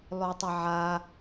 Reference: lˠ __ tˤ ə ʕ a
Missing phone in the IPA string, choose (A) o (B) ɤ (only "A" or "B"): A